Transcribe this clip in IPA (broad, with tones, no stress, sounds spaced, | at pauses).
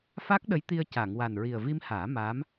f a˦˥ k̚ ɗ ə˧˥ j t̪ i˧ ə̯ c a˨˩˨ ŋ w a˨˩ n ɹ i˨˩ ə̯ v i˧ m h aː˨˩˦ m aː˧˥ m